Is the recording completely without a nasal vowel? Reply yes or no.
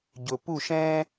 no